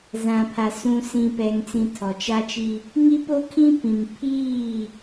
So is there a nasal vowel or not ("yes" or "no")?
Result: yes